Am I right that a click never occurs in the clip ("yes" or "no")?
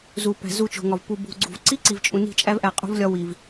no